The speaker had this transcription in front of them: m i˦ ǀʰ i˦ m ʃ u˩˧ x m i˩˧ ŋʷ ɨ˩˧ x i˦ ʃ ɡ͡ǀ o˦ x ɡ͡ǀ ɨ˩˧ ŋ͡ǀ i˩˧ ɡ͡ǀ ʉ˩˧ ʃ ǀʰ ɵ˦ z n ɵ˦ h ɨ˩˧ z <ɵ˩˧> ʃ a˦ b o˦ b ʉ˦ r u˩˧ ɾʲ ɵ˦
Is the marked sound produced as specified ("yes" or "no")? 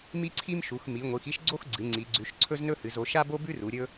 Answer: no